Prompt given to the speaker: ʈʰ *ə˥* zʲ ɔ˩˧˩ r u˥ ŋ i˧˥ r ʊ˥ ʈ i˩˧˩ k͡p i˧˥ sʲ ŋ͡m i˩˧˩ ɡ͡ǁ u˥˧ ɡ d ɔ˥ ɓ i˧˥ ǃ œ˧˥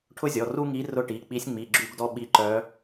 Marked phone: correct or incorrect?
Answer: incorrect